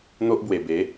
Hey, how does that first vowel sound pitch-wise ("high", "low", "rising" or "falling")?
high